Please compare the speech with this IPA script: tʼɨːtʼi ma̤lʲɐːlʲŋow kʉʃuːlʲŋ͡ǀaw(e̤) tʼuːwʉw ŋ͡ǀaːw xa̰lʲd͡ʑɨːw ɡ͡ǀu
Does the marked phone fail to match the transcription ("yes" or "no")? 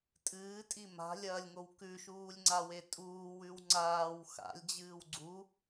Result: yes